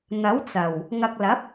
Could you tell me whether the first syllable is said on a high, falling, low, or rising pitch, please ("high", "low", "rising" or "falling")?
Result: rising